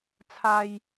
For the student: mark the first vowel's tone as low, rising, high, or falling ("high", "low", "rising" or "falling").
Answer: low